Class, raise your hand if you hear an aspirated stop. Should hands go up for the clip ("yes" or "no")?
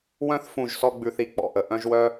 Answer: no